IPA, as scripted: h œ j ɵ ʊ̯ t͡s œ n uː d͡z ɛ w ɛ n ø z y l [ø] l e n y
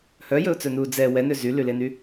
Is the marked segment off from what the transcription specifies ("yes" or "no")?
yes